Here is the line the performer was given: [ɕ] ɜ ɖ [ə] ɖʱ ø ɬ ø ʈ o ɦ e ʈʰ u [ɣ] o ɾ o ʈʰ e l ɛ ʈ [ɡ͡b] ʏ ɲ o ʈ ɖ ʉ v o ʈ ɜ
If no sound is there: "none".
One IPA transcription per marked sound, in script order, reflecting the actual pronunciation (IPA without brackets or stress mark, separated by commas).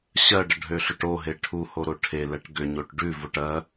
ɕ, ə, h, ɡ